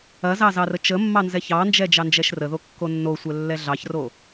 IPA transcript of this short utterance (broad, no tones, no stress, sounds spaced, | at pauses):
ɐ z ɑ z ɑ r ə t͡ʃ ə mː ɑ n z ɛ ç ɑ n d͡ʒ ɛ d͡ʒ ɑ n d͡ʒ ɛ ʃ r ə ð o kː o nː o sʷ ɛ lː ɛ ɮ ɑ ç r o